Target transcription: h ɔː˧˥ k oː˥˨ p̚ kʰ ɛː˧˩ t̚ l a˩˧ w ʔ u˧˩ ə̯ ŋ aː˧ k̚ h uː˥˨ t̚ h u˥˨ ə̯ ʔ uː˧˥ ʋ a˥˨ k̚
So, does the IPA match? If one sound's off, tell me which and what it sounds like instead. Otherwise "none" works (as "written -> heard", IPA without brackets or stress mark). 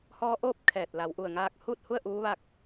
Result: k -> ʔ